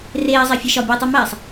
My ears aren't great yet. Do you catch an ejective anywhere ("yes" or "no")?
no